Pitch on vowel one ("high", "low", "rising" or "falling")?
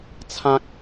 high